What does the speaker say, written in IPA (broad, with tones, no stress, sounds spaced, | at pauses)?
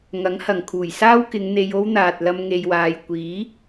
ŋ ɐ˨˥ ŋ h ɐ˨˩ ŋ kʰ uː˨˩ j s aː˥ w k ɪ˨˧ ŋ n̪ e˧ j o˥ w n̪ aː˨ t̚ l ɐ˧ m ŋ e˨ j w aː˨ j kʷ iː˨˥